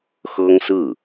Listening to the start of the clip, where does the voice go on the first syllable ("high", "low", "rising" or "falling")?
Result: high